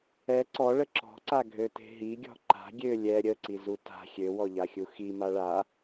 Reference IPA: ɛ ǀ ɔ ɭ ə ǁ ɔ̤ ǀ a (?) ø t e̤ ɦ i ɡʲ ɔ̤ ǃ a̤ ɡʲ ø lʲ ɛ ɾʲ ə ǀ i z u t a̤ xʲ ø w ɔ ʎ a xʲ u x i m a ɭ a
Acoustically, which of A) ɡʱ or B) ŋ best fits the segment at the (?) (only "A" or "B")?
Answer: A